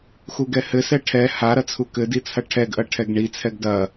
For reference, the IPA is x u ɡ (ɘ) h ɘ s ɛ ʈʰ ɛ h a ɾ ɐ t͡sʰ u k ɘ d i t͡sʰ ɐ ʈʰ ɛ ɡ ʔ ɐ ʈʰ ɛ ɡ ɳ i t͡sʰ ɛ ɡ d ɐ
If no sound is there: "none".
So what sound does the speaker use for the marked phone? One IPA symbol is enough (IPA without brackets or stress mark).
ɛ